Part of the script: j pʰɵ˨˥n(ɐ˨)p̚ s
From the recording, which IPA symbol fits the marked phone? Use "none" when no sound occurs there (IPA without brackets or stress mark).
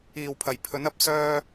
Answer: ɐ˨˥